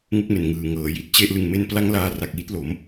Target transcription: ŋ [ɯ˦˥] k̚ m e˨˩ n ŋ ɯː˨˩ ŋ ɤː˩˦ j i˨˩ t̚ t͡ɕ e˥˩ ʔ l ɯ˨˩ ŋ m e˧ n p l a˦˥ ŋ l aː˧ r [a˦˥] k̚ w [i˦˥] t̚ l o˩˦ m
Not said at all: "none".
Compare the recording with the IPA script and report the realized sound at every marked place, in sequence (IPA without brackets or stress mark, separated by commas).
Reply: u˦˥, a˨˩, i˦˥